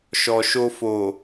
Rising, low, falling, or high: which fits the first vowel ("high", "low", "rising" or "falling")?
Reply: low